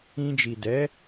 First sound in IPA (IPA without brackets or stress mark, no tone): ĩ